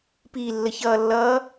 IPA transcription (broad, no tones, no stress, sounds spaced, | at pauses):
p i lː ə ç ʌː lː ʌː